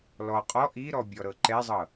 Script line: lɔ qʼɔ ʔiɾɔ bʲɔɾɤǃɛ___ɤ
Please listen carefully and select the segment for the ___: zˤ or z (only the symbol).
zˤ